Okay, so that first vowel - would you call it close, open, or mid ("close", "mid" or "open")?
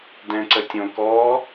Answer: mid